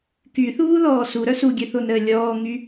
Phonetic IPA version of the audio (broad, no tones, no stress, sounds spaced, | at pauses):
k y θ uː ð ɔː s u ɾ œ s u ɡʲ ø θ o n ɾ əː lʲ ɔː ŋ y